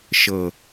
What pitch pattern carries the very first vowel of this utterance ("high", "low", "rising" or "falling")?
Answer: low